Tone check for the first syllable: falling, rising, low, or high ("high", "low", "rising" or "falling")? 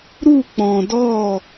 falling